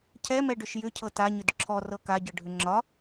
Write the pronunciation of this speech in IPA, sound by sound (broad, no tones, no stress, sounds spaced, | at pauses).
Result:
cʰ ɛ m ɛ ɖ ʏ ʃ j ʏ cʰ ɤ t a ɲ ʏ d ǁʰ ɔ r ɤ k a ɟ ɤ ɖʱ ʏ ŋ͡ǁ ɒ